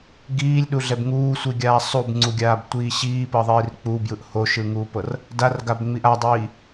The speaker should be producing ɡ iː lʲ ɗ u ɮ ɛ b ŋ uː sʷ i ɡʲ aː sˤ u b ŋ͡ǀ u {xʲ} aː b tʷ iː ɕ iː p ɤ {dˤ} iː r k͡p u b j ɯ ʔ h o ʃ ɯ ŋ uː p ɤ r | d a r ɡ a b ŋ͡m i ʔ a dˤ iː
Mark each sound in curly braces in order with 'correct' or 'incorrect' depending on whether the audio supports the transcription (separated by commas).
incorrect, incorrect